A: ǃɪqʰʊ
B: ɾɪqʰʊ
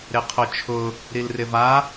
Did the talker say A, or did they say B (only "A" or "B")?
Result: B